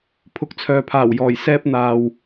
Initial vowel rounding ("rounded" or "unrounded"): rounded